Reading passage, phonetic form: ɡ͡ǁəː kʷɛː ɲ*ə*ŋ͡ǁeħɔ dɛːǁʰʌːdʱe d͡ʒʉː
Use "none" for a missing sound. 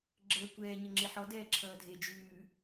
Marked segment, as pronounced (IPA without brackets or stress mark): ə